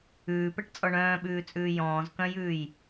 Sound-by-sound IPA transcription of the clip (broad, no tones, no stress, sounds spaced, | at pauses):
ʉː p ɛ ʈ t͡sʼ ɔ ɳ œ̃ː ɓ ʉː t͡sʼ ʉː j ɔ̃ː z k œ̃ j ʉː j